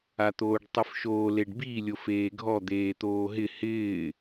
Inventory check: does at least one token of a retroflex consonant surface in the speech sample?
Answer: yes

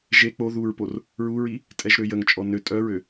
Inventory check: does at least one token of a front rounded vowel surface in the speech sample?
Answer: yes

